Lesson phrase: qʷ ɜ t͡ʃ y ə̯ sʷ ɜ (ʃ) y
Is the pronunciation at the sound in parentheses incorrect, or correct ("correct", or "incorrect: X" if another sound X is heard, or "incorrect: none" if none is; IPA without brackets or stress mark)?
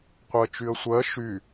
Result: correct